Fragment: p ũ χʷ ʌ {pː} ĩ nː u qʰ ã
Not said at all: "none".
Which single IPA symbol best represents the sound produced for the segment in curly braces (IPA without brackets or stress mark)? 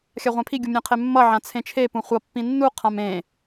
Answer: pː